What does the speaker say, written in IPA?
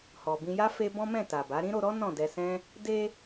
h ɔ˨ b ĩ˧ j a˦ f e˦ b ɔ̃˦ m ɛ̃˦˨ t a˨ b a˨˦ ɾ ĩ˦ ɾ o˧ ɾ ɔ˦ n ɔ̃˦˨ d ɛ˧ s ɛ̃˦ | d e˧

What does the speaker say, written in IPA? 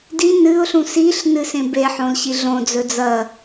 d i n ɨ ʊ̯ ɬ ũ s i ɬ n ɨ s ẽ b e ħ õ l ɕ i ɮ õ d͡z ɵ d͡z ɐ

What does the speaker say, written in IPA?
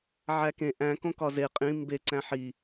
ʕ æ k ẽ ʔ æ̃ k õ k ɒ z e qʼ ĩ m b e ǀ æ̃ ħ i

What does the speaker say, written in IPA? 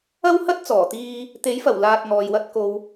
ɐ˥ w h ɐ˥ t̚ t͡s ɔː˨˩ t̪ iː˧ | t̪ e˨˥ j f ɐ˨˩ w l aː˧ t̚ ŋ ɔː˨ j w ɐ˧ t̚ k o˨ w

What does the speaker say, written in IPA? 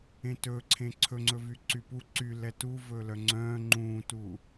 ẽ t ɵː ǀʰ ẽ ǀʰ ɵ ŋ͡ǀ ɵ v y ǀ y p u ǀ y l ɛ t u v ɵː l œ ŋ͡ǀ œ̃ː ŋ͡ǃ ũː t u

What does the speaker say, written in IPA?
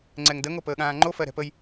ŋ͡ǀ ɛ ŋ d ə ŋ o p əː ɠ ãː ŋ͡ǃ o f ɜ ɾ ɛ̤ p ə j

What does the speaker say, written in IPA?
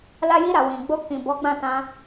l a˦ j i˧ ɾ a˨ w ĩ˨ ɡ͡b o˧ k ĩ˨ b ɔ˨˦ ɡ͡b ã˦˨ t ã˧

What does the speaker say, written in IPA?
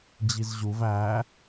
d͡ʑ i z ʑ u v æ

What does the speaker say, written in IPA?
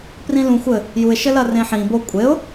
p r ĩ l ũ xʷ ɘ | j u ɪ̯ ʃ ɘ l ɐ r ẽ ħ ĩ b o kʷʼ e ʊ̯

